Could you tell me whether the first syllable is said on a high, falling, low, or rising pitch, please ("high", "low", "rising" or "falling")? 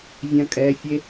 high